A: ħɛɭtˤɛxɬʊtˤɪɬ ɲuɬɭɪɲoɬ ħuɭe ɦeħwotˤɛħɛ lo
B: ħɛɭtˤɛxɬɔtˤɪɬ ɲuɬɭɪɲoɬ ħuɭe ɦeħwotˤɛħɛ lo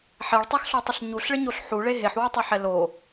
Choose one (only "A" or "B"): B